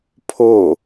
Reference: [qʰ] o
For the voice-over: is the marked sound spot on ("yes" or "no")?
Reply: no